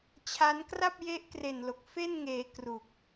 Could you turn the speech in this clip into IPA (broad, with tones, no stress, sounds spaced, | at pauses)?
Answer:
t͡ɕʰ a˦˥ n k r a˥˩ p̚ j e˦˥ ʔ k r e˨˩ n l o˨˩ k̚ f e˥˩ n ŋ eː˩˦ k r u˨˩ k̚